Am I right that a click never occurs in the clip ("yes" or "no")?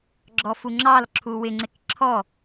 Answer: no